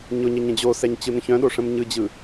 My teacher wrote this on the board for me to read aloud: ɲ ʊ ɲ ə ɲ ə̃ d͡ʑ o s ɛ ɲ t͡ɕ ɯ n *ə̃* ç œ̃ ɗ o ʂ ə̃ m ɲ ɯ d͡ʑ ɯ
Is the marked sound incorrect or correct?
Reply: correct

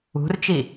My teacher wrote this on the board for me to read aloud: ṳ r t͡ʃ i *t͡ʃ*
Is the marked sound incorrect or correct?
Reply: incorrect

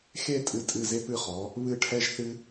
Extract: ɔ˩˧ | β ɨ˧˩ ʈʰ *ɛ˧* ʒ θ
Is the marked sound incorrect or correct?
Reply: correct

